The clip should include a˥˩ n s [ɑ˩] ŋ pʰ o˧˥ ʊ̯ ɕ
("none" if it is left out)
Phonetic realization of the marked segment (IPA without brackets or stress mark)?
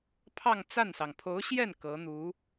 ɑ˩